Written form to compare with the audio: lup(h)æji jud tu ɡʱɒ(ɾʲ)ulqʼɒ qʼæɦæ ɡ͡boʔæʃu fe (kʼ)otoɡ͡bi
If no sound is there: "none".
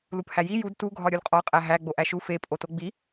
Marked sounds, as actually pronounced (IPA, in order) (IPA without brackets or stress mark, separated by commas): h, ɾʲ, pʼ